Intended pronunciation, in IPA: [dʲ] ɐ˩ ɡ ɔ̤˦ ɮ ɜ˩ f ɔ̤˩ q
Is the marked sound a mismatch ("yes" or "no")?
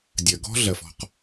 no